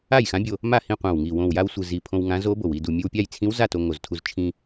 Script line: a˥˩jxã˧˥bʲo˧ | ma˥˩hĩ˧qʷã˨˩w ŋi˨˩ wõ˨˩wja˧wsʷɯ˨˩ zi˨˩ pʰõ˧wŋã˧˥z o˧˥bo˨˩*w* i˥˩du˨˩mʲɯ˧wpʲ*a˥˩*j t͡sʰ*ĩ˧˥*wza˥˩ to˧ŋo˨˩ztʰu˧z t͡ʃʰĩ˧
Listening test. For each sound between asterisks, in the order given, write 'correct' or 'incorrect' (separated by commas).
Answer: correct, correct, correct